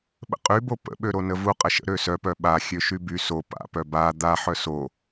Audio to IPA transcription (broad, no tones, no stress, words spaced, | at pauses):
ɓə̰qʼybo pə̰ɓø ɾonəvu qʼəʃə̰ ɾøsœpœ ɓa xʲøʃyby so pa̰pœ ba d̪a ħœso